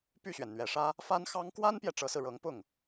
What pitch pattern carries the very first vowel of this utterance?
falling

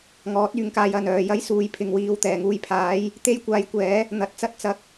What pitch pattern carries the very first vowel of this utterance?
rising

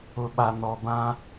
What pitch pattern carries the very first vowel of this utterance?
low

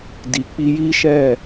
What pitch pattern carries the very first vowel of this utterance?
low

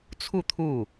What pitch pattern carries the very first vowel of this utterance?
falling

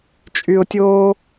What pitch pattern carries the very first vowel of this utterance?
low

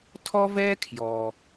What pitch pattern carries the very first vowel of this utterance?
high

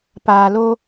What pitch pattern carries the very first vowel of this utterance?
low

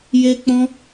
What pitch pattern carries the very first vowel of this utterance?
high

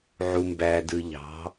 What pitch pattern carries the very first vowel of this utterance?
low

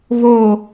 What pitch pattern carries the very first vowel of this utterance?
falling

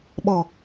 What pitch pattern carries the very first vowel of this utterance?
low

